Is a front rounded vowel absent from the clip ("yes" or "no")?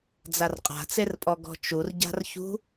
yes